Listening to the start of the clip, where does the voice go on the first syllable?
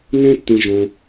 high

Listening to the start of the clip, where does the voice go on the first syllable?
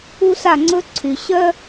high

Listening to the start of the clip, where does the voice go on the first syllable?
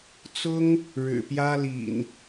high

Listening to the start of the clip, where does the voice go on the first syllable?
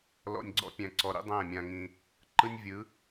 low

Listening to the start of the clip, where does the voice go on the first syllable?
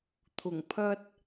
low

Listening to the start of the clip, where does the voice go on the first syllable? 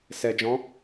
low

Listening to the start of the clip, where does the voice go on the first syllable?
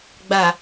low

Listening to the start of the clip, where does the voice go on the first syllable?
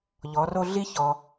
rising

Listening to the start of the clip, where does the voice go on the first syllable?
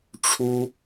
high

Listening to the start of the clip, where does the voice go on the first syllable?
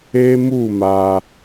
high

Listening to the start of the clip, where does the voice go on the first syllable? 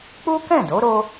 high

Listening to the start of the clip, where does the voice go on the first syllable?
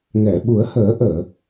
low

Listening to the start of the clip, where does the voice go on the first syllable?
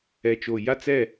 low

